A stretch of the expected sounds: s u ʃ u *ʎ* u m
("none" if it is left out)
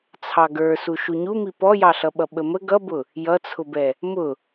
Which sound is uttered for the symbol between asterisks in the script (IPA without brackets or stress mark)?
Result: ɲ